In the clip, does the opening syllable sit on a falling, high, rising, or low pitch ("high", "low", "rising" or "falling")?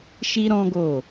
high